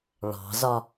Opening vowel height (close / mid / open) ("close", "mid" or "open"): open